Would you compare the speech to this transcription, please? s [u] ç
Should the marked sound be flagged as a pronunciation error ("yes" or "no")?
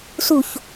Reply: no